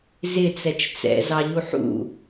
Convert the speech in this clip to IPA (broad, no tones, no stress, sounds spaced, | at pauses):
z ɪ t͡s ɛ t͡ʃ t͡s ɛ̰ z ɑ ʎ u ħ ṵ